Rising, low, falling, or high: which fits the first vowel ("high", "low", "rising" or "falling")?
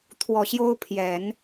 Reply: low